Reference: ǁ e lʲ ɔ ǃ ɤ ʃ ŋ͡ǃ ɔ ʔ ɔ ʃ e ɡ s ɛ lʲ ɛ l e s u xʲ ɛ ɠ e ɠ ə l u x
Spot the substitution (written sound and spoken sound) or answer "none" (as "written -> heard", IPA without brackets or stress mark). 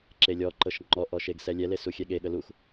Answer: none